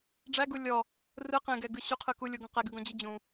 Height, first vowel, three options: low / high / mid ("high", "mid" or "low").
low